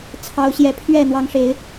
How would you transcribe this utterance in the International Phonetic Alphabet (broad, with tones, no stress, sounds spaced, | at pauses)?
t͡sʰ ɑ˨˦ ʊ̯ ɕ j ɛ˨˦ pʰ ɥ ɛ˥˨ n̪ w ɑ˨˦ ŋ ʂ e˨˦ ɪ̯